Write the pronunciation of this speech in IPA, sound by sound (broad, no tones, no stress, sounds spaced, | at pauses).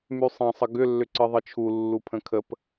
m y sˤ ɛ̃ sˤ ə ɡ ʏ lː ʏ ǀ ɨ ðˤ ɨ t͡ʃʰ u lː u pʰ ə̃ kʰ ə p